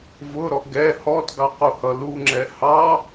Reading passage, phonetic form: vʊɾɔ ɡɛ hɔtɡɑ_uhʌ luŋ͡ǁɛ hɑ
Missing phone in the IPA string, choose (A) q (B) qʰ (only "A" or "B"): A